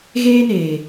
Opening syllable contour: high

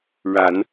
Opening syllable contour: low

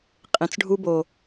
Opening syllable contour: low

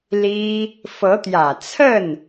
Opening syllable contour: high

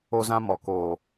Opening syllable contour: high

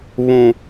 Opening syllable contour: low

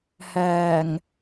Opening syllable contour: low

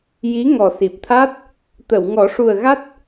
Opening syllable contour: rising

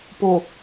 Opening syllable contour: low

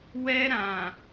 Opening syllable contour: high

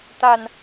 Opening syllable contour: low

